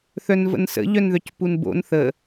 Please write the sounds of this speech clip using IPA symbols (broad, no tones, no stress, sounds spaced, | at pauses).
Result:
θ œ n v ə̰ n s ə̰ ʎ œ n ð œ c p u n b o̰ n θ ə